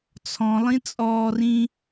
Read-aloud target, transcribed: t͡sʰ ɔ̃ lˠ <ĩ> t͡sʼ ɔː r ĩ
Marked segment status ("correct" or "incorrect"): correct